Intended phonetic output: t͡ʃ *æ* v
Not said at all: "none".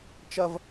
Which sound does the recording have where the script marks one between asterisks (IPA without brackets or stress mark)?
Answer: ɐ